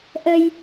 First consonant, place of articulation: glottal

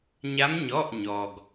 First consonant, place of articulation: palatal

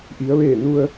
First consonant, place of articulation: glottal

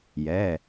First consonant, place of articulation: palatal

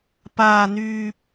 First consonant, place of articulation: labial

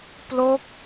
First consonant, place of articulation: labial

